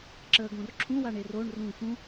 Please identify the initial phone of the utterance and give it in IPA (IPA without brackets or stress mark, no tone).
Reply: ǁ